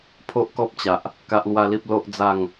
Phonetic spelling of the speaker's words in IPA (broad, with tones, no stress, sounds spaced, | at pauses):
pʰ o˦ ʔ k ɔ˦ p̚ t͡ɕ a˨ ʔ | k a˦ ʔ l w a˦ l i˦ p̚ l o˦ ʔ d͡z a˥˧ ŋ